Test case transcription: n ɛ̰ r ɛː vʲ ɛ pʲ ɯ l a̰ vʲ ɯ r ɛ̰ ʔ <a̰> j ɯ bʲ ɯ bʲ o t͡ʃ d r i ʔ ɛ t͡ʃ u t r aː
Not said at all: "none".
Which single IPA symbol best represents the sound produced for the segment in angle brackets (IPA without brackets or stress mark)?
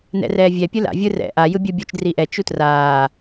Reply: a